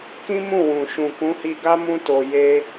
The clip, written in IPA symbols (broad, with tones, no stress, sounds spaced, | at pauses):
k ĩ˦ m ũ˦˨ w ũ˨ ʃ ũ˨ k ũ˨˦ h i˧ ɡ a˦ m ũ˦ t o˧ j e˦